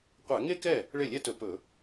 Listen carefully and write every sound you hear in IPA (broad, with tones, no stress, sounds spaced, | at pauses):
qʷ æ˧˩˧ ŋ e˥ k ɛ˥˩ | ɭ e˥˩ lʲ ɛ˥ t ɵ˧˩˧ p ɵ˧˩˧